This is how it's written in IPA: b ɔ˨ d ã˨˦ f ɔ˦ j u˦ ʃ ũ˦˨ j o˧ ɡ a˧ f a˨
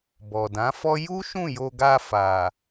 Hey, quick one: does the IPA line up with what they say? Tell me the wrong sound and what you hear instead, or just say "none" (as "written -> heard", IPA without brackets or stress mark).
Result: none